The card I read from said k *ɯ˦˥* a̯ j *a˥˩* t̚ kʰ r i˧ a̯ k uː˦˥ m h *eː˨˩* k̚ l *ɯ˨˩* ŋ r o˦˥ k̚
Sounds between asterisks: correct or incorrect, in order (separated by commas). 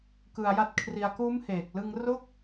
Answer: incorrect, correct, correct, incorrect